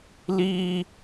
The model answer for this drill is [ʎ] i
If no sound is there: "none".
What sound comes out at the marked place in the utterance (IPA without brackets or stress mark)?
l